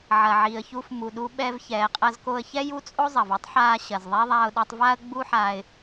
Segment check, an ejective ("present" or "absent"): present